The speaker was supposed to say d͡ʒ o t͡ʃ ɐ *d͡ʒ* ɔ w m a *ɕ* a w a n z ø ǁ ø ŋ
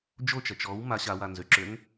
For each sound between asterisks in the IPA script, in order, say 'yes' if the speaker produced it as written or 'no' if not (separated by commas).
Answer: no, yes